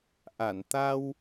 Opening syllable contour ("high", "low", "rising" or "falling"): low